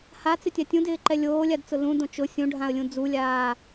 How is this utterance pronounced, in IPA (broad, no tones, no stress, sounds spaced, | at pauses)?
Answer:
h a t͡s ɪ tʲ a tʲ ũ d ɪː ǃ ɛ lʲ oː lʲ a d t͡s ʊ l ũ d õ t͡ʃ ʊ sʲ ũ ɖʱ ã ə̯ lʲ ũ d͡z u lʲ aː